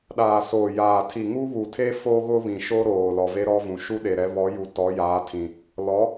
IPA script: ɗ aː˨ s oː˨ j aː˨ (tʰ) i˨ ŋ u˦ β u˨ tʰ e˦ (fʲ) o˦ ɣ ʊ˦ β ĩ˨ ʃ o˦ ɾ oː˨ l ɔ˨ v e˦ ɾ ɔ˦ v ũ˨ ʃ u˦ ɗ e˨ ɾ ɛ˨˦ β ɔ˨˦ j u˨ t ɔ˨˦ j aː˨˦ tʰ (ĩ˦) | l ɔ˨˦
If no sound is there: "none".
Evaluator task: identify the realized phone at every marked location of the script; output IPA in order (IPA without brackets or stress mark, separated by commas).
tʰ, f, ĩ˨